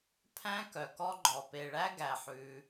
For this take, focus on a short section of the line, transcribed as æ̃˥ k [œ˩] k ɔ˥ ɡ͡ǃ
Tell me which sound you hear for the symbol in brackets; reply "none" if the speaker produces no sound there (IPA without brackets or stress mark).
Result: œ˩